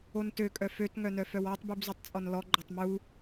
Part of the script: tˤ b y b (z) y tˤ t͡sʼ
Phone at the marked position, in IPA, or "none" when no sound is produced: z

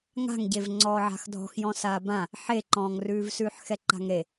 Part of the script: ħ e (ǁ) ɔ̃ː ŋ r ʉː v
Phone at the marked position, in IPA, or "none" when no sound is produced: ǃ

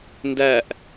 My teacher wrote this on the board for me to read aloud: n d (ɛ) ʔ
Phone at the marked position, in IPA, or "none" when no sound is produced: æ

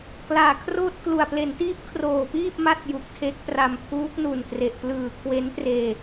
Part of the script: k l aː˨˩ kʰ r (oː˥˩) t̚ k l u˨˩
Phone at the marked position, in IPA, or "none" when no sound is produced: oː˥˩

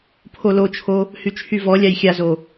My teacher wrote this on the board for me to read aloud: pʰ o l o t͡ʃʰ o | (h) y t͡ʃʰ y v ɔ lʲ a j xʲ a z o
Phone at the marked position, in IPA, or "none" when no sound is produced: h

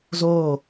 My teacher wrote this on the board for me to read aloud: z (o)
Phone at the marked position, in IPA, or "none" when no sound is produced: oː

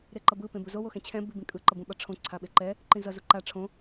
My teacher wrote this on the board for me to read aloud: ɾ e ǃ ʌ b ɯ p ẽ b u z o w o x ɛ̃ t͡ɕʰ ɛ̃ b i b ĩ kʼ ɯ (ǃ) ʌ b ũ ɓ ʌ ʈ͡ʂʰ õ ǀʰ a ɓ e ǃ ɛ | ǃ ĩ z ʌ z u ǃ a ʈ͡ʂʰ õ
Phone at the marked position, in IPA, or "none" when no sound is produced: ǃ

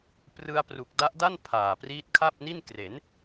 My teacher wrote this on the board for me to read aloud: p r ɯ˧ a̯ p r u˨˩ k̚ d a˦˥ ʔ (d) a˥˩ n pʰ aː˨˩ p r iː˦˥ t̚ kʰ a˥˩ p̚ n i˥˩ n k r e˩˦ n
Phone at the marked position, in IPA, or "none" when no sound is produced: d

